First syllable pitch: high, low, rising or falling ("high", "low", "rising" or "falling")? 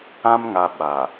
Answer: high